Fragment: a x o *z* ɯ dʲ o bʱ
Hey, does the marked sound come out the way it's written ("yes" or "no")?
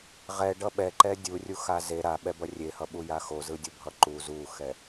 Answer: yes